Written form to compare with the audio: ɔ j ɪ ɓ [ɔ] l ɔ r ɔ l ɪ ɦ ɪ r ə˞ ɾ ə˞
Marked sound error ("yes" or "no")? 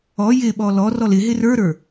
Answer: no